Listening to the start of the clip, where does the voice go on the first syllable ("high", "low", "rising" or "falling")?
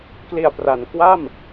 low